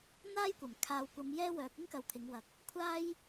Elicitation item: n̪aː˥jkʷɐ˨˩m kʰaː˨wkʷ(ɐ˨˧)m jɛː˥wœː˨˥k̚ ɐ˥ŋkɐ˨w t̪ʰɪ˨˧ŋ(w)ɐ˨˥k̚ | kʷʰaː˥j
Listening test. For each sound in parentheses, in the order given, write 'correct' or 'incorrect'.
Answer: correct, correct

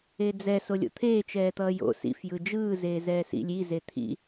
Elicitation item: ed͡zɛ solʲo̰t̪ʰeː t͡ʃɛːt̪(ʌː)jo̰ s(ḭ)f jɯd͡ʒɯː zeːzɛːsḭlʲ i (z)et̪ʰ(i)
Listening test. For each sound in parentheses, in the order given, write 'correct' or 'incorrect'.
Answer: correct, correct, correct, incorrect

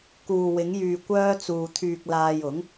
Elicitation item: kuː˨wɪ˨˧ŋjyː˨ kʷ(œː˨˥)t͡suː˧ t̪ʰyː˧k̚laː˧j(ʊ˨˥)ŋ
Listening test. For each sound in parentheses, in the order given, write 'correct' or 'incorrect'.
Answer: incorrect, correct

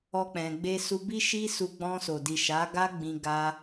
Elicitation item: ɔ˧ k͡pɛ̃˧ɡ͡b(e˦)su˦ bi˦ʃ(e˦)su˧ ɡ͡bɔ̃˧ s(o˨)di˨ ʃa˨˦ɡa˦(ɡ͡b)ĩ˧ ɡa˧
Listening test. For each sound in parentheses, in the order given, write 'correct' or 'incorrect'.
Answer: correct, incorrect, correct, correct

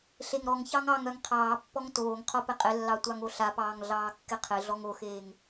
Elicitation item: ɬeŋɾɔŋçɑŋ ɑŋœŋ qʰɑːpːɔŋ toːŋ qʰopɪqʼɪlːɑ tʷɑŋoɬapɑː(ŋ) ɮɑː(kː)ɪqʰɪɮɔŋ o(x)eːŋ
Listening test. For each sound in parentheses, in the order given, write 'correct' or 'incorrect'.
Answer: correct, correct, correct

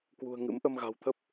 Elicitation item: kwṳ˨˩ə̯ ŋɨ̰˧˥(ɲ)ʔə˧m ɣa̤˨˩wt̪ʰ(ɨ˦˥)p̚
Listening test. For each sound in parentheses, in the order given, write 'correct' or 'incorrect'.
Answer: incorrect, incorrect

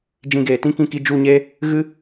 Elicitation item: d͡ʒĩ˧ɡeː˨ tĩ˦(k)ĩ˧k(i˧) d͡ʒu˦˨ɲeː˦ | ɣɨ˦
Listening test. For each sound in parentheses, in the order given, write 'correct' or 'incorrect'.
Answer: correct, correct

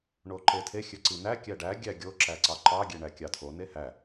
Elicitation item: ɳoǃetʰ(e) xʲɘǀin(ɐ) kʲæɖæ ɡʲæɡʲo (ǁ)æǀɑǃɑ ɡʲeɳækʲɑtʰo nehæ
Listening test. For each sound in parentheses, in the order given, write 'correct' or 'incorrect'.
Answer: correct, incorrect, correct

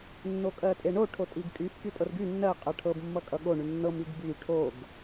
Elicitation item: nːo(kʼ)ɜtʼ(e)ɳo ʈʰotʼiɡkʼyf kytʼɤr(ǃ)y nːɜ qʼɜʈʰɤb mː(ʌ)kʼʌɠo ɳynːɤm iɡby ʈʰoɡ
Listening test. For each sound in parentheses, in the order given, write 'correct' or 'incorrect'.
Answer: correct, correct, incorrect, correct

